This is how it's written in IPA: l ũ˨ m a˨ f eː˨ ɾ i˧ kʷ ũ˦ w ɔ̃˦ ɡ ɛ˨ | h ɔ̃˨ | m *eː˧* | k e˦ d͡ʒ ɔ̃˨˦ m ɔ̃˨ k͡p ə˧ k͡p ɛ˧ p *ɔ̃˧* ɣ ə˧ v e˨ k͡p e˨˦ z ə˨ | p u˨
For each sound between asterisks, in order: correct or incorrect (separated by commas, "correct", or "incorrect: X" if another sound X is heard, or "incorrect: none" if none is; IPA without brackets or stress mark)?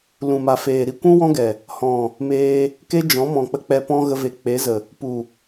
correct, incorrect: ɔ̃˦